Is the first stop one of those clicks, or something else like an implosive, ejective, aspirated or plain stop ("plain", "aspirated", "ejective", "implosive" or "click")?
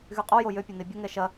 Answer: ejective